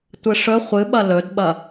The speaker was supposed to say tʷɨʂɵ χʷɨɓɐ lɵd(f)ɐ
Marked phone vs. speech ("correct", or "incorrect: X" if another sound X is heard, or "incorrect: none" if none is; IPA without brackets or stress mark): incorrect: ɓ